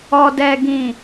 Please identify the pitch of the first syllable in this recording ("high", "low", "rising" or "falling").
low